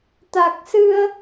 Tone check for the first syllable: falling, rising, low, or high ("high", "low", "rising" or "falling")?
low